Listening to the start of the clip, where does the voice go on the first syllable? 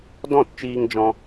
falling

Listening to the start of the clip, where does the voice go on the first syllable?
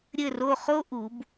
falling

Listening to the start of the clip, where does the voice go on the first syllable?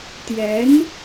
rising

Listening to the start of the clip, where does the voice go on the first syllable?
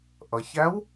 low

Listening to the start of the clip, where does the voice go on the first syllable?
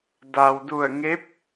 low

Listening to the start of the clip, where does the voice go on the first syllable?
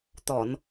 low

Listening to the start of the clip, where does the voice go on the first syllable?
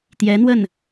rising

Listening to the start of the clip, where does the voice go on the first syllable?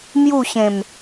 falling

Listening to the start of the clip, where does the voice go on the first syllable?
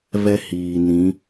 high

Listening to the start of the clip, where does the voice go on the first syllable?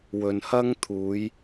low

